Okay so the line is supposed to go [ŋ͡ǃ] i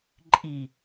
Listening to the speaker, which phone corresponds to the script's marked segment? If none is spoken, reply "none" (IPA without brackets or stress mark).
ǃʼ